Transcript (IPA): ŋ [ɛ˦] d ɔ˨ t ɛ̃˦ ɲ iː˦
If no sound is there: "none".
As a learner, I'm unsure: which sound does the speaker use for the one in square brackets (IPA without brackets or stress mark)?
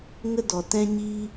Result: ə˦